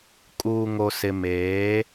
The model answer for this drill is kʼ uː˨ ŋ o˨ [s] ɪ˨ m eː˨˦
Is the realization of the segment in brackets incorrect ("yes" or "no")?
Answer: no